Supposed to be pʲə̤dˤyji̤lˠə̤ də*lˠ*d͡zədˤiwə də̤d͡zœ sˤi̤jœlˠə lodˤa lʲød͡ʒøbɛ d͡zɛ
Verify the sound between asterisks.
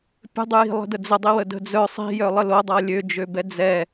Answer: incorrect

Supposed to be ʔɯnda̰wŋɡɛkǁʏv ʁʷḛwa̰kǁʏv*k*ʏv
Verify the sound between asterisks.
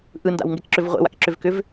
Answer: correct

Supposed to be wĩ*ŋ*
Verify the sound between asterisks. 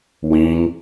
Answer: correct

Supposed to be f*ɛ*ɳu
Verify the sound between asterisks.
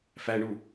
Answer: incorrect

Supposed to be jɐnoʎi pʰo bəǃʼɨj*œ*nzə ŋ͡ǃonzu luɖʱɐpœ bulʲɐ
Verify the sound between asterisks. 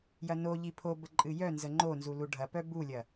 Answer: correct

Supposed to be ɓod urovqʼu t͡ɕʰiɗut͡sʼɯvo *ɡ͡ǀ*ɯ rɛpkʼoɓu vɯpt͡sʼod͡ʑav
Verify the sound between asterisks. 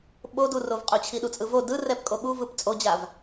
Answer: incorrect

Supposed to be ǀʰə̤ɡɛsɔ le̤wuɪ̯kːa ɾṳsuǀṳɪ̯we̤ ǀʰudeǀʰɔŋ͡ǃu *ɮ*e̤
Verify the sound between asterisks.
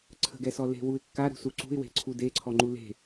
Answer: incorrect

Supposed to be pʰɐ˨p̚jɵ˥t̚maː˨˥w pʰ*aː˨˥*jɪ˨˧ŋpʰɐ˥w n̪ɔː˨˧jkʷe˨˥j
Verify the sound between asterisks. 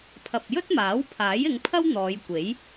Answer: correct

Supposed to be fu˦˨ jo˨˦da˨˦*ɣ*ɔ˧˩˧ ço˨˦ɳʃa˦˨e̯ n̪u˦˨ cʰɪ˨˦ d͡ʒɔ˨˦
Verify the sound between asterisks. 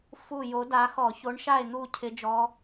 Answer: incorrect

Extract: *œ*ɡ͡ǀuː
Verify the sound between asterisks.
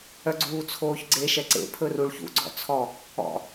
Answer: correct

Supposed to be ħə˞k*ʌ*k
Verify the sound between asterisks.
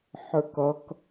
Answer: correct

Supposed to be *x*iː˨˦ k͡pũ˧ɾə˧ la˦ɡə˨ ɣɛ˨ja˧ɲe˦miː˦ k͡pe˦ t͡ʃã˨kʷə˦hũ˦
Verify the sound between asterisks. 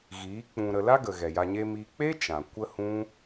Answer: incorrect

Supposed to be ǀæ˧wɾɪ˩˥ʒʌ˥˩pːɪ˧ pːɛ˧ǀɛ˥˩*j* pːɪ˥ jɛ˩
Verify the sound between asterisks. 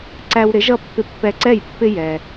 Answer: correct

